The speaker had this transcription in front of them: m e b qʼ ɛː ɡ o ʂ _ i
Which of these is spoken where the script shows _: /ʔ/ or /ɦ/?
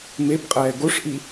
ʔ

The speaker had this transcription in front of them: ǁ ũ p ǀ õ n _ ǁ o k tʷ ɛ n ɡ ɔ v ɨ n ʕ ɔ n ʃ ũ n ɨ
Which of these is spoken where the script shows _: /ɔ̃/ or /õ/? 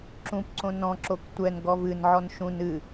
ɔ̃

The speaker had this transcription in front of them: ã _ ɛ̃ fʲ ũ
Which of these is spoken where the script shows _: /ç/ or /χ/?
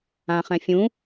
χ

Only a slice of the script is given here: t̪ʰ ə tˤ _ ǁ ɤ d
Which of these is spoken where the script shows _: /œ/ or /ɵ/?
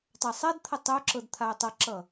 œ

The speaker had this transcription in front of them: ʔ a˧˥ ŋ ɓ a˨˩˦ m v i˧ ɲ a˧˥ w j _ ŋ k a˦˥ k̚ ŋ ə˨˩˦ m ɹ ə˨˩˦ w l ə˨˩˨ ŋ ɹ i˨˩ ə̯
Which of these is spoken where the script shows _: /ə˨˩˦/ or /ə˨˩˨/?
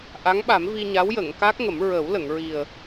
ə˨˩˨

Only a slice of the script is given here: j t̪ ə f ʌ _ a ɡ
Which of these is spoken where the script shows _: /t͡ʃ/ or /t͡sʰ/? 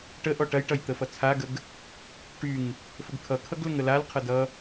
t͡sʰ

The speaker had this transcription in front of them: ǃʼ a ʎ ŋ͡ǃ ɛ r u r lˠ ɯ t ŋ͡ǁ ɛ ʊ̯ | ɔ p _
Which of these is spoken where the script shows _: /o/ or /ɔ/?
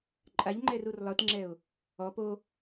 o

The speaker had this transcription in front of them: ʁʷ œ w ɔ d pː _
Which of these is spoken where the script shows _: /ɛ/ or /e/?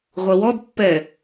ɛ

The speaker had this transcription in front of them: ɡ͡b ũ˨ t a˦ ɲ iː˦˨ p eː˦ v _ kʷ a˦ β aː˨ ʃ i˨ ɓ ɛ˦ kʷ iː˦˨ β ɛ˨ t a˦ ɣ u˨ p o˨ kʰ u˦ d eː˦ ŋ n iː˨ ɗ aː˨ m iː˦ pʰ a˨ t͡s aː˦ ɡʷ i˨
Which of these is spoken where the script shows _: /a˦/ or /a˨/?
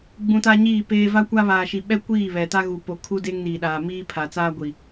a˦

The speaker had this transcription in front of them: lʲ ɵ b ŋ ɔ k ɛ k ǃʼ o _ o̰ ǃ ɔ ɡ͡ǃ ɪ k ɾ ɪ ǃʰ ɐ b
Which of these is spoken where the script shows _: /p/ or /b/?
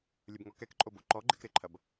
b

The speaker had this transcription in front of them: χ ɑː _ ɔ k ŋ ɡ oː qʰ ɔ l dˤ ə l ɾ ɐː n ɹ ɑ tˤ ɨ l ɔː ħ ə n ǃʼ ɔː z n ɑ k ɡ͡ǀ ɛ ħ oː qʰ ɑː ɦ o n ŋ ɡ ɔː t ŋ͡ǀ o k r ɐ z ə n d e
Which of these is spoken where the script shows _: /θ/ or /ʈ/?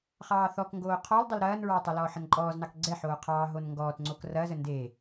θ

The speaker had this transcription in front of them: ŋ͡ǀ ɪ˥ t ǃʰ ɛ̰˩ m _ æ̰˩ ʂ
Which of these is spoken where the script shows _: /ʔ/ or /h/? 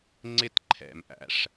ʔ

